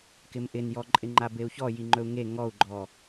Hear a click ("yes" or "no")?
yes